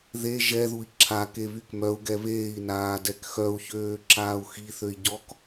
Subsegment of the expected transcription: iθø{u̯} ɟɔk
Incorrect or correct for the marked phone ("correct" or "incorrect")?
incorrect